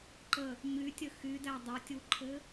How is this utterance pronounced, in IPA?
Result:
ǃ ə | ɲ y tʲ ə x y d æ dˤ e tʲ u ǃʰ ɘ

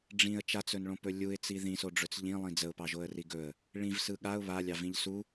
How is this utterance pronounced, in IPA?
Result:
ɖ͡ʐ ĩ ə̯ t͡ʃ a t͡s ɵ n ɭ õ p ɵ lʲ u ɪ̯ t͡s i ð ĩ s o ɖ͡ʐ ɵ t͡s ʎ ĩ lˠ ĩ d͡z ə ʊ̯ p ɑ ʒ o ə̯ r i ɡ ɵ ə̯ | ɭ ĩ v s ɯ ɠ a ʊ̯ β a lʲ ɑ v ĩ ʎ s u

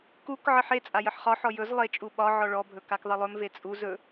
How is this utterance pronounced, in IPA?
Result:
k u k ʕ ə ħ e t͡sʼ a j ə ħ χ ɒ ħ ɔ j ɵ z lˠ e t͡ʃʼ u ɓ ɒ ʕ ɔ ɭ ɔ bʱ ɵ k a k ðˤ ə lˠ ɵ m v e t͡sʼ u z ɵ

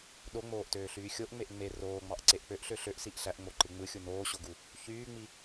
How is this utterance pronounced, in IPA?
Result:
ɗ o ŋ͡m oː ʔ t øː ɬ yː xʲ o ʔ ŋ͡m e ʔ ŋ͡m e r oː ŋ͡m ɑ ʔ ǀ e ʔ k͡p ø ʔ ɬ ø ɬ ø ʔ s i ʔ ɬ æ ʔ ŋ͡m o ǃ ɯ ŋ͡m ɯ xʲ u n oː ɕ o ɡ u | ç yː ŋ͡m i

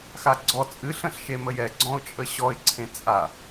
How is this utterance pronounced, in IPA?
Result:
x a ɡ͡ǀ ɔ t͡sʼ ɨ ɬ ə̃ ɬ ʃ e m ə j ɛ ɡ͡ǀ ɔ̃ ʊ̯ t͡ʃʼ ə ɕ ɔ ɪ̯ ǀʰ ẽ t͡sʼ a

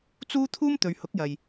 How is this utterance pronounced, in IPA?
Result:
t͡s uː˥ t̪ʰ uː˥ m t̪ ɵ˨ ɥ h ʊ˨˥ k̚ j ɐ˨ j

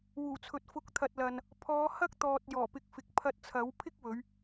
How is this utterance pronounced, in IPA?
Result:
w uː˨˩ t͡sʰ ɵ˨ t̚ f ʊ˨˥ k̚ t̪ʰ ɐ˨ t̚ l ɐ˨ n | pʰ ɔː˨˧ h ɐ˥ k̚ t̪ ɔː˨ t̚ j ɔː˨˩ p ɪ˨˥ k̚ f ɪ˨ k̚ pʰ ɐ˧ t̚ t͡sʰ ɐ˨˥ w pʰ ɪ˥ k̚ w ɵ˨˧ ɥ

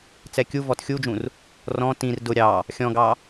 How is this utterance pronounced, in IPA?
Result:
t͡s ɛ kʲ u v ɔ t xʲ u d͡ʒ ũ r | r ɔ̃ t ĩ r d ʊ ɾʲ ɑ | xʲ ɔ̃ ɡ ɑ

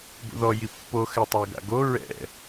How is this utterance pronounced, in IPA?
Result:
b ṵ ð ɔ j i pː o x ɛ tˤ ɛ ɡ a̰ ɡ o ɹ ɛ̰

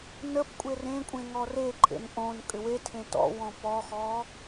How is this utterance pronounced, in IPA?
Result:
n ə p kʷʼ e r ẽ kʷʼ ẽ ŋ ɔ r e ǃʼ ḛ n ʔ õ n kʼ ʏ w e tʰ ẽ t ɔ̰ w ɔ̃ p ɔ x ɔ

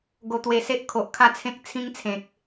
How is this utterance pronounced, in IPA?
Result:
ɡ o˧ t̪ w e˧ s e˦ ʔ kʰ o˨ ʔ kʰ a˥˧ t͡sʰ ẽ˦ k̚ t͡sʰ ĩ˦ ŋ t͡sʰ ẽ˨ k̚

